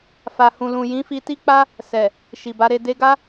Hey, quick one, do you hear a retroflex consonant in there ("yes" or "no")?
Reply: no